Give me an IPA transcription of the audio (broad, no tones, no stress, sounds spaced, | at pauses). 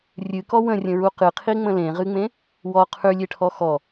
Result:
rʲ ɨ k ɔ w ə̃ rʲ ə̃ ɹ u q ɨ qʰ i ŋ͡m ə̃ l ẽ ʁ ɨ ŋ͡m ẽ | w ɔ qʰ ʉ lʲ e ʈʰ ɔ x ɔ